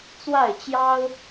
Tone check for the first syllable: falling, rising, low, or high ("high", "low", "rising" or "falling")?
falling